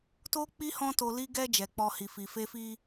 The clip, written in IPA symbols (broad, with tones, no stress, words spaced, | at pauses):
to˧k͡pi˧ hɔ̃˦to˧li˦ ɡɛ˦ d͡ʒɛ˧k͡pɔ˦hi˧ fi˨fe˧ fi˦